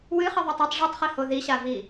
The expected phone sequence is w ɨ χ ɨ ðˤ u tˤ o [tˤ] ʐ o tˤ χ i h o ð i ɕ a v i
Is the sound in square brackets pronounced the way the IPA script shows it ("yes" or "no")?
yes